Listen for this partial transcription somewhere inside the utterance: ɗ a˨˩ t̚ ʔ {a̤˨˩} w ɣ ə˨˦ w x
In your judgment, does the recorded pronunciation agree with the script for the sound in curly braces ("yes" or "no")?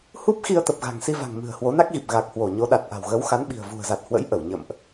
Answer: yes